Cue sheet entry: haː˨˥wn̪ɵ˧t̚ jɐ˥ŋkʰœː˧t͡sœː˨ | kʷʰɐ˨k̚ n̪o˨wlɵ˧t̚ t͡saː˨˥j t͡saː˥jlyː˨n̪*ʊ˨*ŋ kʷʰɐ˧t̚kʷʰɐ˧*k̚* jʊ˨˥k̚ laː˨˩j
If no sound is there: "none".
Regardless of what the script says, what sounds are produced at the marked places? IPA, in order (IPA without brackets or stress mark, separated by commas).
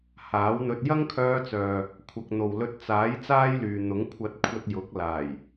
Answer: ʊ˨˥, t̚